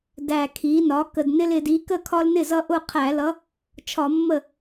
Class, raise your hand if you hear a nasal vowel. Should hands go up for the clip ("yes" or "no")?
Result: no